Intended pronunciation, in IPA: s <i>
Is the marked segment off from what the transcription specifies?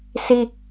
no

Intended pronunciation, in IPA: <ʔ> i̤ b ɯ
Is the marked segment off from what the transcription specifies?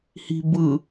yes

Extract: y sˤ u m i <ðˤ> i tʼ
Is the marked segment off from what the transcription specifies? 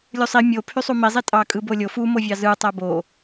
yes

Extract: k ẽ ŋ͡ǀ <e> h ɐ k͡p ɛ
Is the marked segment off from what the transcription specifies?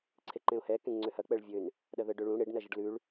yes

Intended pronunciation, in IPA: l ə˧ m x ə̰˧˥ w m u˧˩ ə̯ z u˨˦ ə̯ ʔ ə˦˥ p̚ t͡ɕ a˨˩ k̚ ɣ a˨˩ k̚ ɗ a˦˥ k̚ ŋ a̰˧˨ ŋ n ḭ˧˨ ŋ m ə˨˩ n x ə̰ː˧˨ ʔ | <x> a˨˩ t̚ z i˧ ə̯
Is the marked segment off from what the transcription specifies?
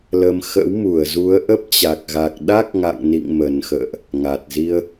yes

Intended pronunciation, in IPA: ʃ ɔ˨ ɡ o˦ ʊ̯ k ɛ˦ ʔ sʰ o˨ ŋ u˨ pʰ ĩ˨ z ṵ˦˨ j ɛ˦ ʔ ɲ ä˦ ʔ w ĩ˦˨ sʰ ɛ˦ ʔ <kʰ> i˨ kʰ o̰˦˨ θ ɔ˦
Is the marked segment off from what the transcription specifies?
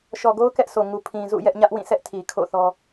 yes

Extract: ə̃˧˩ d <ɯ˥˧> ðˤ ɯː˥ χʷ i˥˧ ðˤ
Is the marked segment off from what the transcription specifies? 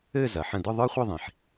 no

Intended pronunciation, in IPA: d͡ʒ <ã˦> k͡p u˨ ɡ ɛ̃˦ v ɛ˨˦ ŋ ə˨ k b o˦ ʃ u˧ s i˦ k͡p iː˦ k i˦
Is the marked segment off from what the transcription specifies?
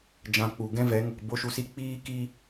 yes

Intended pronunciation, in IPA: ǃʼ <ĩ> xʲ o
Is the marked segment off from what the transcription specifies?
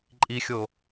yes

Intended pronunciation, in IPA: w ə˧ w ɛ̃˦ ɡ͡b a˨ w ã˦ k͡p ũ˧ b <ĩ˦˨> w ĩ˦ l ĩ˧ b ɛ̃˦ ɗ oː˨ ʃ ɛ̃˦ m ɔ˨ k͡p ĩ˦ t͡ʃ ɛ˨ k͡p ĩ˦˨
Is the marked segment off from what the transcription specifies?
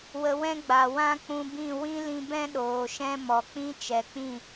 no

